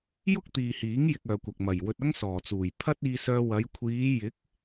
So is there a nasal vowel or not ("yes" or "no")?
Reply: no